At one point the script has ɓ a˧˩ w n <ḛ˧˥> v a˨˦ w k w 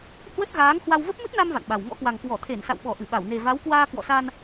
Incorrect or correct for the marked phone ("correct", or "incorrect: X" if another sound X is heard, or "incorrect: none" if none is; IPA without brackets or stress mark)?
incorrect: e˨˩